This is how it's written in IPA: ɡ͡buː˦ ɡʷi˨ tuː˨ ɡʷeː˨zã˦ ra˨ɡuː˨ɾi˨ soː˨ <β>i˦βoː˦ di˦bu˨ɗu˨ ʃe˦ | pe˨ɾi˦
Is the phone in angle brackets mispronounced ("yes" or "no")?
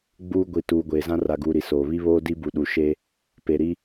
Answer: no